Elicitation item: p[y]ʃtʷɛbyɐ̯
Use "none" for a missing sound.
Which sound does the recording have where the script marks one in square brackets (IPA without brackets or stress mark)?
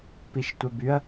i